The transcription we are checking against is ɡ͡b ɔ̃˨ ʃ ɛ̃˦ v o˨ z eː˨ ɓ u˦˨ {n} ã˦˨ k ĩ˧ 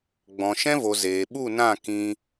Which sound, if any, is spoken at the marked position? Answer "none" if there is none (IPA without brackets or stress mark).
n